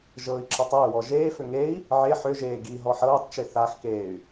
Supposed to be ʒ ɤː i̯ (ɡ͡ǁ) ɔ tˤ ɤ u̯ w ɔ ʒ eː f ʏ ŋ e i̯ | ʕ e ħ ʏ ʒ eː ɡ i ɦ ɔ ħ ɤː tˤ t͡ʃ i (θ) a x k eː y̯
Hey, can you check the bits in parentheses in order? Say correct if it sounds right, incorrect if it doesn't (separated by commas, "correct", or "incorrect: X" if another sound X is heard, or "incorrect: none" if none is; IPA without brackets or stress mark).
incorrect: ǁ, correct